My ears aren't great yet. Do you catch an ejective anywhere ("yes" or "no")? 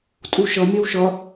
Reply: yes